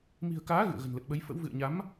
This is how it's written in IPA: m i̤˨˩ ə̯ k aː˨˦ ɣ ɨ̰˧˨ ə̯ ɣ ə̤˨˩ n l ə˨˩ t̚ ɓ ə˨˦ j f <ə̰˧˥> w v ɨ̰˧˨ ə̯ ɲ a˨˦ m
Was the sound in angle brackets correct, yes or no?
yes